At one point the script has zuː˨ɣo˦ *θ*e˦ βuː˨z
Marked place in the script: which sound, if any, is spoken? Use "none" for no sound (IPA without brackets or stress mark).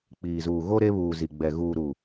ɾ